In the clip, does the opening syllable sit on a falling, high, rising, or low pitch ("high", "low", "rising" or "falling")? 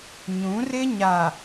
rising